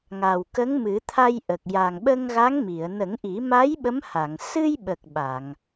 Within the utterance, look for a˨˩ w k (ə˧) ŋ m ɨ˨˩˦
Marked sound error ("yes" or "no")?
yes